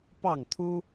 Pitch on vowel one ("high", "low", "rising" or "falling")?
falling